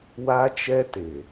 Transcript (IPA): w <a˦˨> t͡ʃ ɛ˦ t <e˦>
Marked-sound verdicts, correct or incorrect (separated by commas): incorrect, incorrect